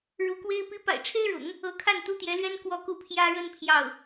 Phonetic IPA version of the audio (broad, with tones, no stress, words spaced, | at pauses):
ɻu˧˥kwe˥ɪ̯ pi˧˥pa̰˨˩ɪ̯ʈ͡ʂʰe˥ɪ̯ɻʊ̰˨˩˦ŋ | ɤ˧˥kʰa˥˩n t̪u˥t̪jɛ˧˥lɥɛ˥n kwɔ˥˧ku˥˩ pʰjä˥ɻə˥n pʰjɑ˥˩ʊ̯